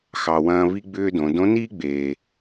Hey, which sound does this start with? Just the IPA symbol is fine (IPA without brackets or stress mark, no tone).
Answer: x